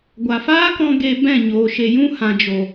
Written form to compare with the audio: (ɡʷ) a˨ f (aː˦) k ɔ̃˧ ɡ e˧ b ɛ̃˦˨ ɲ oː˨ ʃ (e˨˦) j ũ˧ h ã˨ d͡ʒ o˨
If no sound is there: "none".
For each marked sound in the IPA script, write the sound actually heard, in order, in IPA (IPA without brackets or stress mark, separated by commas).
ɡʷ, aː˦, e˨